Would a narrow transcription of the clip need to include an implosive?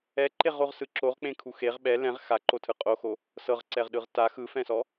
yes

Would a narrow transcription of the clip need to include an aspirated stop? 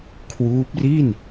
yes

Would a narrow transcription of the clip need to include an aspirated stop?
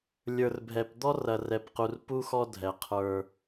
yes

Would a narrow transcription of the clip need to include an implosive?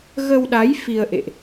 yes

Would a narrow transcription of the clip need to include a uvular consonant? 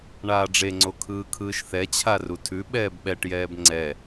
no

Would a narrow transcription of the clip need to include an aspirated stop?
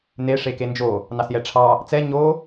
yes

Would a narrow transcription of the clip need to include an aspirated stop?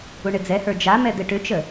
no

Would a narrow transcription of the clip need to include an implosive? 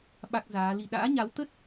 yes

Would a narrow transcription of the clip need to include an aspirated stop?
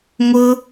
no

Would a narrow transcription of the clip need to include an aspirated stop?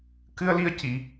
no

